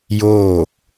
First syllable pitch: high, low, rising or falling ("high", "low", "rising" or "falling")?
falling